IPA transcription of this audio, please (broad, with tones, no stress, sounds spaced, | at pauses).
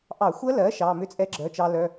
ʔ ɑ˧˩˧ xʷ ɜ˦˥ l ɜ˩˥ ʃ ɑ˩˧˩ m ʏ˦˥ t͡sʼ ɛ˦˥ ɡ͡ǁ œ˩˧˩ t͡ʃ ɑ˧ l œ˩˧˩